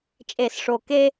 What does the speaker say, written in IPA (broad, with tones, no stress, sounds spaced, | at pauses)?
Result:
t͡ʃʼ e˧˩˧ s ʂ o˨˩ k e˥